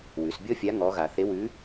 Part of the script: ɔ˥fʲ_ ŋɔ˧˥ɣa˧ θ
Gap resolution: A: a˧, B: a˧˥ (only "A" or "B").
B